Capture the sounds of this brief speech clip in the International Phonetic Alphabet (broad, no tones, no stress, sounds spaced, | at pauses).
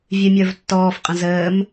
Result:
vʲ ɨ mʲ ə˞ v tː ɔː f qʼ ə̃ z əː m